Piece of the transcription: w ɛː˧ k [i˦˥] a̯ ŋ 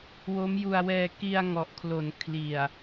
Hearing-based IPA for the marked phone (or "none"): i˧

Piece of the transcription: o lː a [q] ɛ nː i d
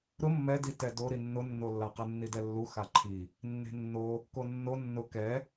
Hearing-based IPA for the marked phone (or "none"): q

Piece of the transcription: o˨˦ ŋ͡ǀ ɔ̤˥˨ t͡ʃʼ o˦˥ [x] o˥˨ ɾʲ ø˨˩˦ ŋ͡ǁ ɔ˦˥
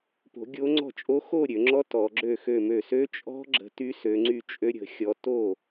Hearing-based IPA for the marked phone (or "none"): x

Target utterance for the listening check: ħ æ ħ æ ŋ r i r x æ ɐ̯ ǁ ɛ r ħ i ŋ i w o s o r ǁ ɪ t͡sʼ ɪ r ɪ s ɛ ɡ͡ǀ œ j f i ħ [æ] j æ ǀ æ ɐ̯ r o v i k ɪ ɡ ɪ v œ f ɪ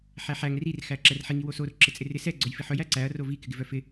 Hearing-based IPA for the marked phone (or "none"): œ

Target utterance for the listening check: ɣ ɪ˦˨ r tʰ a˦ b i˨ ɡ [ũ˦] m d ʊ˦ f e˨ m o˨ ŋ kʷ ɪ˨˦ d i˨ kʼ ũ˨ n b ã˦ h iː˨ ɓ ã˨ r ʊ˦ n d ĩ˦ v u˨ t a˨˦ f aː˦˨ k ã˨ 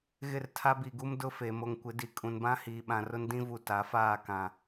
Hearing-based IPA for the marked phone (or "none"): u˦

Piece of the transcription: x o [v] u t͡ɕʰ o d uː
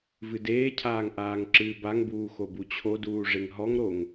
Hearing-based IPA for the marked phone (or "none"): b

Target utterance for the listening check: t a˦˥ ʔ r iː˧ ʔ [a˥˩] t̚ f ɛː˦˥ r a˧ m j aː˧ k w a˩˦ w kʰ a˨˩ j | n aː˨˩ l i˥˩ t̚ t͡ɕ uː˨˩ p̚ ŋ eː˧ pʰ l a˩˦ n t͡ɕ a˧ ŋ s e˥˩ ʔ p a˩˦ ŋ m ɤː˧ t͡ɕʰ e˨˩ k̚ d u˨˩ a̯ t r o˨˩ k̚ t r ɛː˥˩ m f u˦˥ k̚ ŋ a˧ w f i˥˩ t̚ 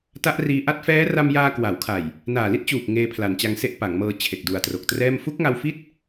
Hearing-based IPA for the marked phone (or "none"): a˥˩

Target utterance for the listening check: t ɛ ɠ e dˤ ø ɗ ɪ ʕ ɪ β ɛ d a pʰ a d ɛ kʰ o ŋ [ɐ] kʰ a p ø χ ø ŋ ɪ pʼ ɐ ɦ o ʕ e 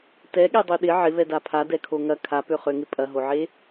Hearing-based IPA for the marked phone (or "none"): ɐ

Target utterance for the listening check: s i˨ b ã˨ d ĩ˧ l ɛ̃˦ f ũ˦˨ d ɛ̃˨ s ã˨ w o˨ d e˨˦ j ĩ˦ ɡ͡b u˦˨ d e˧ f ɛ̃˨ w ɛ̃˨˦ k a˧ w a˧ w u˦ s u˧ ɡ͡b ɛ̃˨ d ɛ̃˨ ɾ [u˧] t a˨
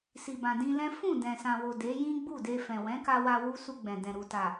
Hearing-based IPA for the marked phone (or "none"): u˨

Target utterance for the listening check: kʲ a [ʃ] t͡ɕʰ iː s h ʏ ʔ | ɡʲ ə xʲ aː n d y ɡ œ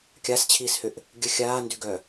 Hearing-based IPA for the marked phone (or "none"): s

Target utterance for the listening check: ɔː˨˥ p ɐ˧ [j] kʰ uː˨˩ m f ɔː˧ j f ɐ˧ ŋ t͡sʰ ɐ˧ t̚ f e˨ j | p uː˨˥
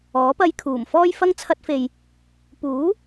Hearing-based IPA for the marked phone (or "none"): j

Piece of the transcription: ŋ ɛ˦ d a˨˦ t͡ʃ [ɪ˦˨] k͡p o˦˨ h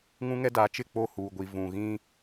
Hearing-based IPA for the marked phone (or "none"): ɪ˦˨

